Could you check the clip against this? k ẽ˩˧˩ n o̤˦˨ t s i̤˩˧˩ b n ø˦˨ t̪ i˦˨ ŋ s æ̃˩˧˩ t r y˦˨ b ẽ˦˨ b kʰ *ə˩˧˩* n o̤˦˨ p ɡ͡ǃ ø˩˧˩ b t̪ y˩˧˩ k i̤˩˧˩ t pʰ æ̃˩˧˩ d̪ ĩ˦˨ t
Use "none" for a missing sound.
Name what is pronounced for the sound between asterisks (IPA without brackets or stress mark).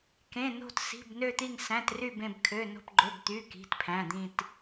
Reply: ø˩˧˩